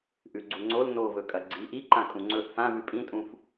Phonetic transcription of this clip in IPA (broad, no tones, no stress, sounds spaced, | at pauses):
ʔ ʉ ɡ͡ǀ u ŋ͡ǀ o l n o v ɵ kʼ ɐ ɡ͡ǀ i ʔ i ǃ ã kʼ ũ ŋ͡ǀ ɵ ʔ f ã v ʉ pʼ ĩ tʼ ũ f